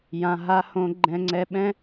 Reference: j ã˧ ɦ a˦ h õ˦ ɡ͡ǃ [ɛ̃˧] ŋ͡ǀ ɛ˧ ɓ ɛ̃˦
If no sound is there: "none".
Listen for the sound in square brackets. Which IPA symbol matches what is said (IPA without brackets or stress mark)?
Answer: ɛ̃˧